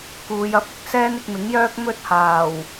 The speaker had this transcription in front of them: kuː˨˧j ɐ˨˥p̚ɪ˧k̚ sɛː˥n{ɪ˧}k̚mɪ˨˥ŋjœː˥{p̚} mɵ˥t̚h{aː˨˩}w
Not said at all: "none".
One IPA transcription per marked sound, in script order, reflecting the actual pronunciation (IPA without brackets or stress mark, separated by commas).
ɪ˧, k̚, aː˨˩